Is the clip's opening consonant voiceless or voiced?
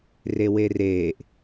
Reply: voiced